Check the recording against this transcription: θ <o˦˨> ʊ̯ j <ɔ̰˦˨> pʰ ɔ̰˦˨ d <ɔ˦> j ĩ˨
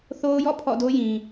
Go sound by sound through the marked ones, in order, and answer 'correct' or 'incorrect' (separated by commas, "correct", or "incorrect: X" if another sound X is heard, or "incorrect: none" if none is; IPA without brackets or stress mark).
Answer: incorrect: o˦, correct, incorrect: o˦